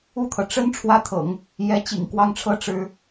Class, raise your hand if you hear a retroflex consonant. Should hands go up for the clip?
yes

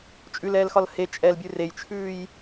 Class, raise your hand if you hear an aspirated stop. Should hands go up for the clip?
yes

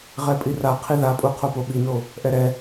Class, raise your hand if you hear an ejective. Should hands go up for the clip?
yes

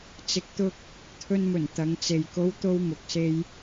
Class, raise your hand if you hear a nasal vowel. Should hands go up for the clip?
no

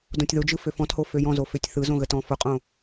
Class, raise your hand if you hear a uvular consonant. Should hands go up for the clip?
yes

